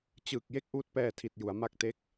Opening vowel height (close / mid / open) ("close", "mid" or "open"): close